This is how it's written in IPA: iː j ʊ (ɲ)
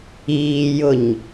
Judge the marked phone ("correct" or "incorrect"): correct